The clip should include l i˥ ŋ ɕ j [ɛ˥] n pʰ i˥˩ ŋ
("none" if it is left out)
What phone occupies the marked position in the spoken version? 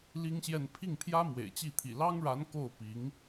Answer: ɛ˥˧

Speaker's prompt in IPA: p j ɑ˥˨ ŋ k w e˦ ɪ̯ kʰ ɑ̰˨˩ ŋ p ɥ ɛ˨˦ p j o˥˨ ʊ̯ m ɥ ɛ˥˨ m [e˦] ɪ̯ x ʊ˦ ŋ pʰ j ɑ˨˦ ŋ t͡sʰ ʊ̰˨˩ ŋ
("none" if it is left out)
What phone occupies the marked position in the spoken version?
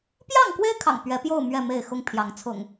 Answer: e˥˨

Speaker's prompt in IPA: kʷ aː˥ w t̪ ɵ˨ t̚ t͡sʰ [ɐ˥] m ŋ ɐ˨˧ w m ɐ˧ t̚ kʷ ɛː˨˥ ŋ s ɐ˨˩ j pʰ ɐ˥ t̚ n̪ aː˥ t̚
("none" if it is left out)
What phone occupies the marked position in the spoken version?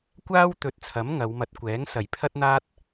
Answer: ɐ˨˥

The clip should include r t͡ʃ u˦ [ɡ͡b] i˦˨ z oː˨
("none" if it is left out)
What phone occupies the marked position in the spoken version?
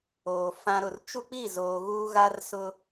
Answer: k͡p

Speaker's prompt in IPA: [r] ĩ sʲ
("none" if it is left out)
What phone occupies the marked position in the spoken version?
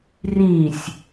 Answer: r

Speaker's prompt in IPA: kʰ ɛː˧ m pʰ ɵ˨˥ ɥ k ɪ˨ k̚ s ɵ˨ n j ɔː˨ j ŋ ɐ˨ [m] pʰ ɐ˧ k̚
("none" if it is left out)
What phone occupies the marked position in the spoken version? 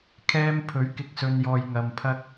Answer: m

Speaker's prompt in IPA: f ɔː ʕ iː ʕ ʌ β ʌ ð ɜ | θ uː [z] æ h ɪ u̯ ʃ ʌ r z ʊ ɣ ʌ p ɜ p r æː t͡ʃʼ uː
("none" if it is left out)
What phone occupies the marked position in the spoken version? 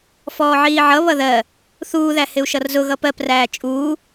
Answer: ð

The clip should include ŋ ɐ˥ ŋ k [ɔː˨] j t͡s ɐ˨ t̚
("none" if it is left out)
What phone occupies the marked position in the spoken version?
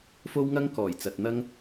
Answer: ɔː˨˩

